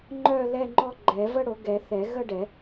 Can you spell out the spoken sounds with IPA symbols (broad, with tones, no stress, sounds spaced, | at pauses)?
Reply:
ŋ͡ǃ œ˥˧ l ɛ˥˧ ŋ͡ǃ ɔ˥˧ ɡ͡ǃ ɛ˨˩˦ v ə˥˧ ɽ o˨˩˦ ɡ ɛ˨˩˦ θ ɛ˨˩˦ ɣ ə˥˧ ɖ ɛ˨˩˦